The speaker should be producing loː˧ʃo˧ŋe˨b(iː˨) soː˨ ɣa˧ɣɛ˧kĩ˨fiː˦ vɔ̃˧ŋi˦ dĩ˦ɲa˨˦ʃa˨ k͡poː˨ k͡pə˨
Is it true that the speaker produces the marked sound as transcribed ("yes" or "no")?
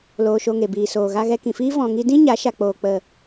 yes